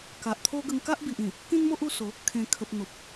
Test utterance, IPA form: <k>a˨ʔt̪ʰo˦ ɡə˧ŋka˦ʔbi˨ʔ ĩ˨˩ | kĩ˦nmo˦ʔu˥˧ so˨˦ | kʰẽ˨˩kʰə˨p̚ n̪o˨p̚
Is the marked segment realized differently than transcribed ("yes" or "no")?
no